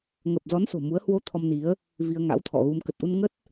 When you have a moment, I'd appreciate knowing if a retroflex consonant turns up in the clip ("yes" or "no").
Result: no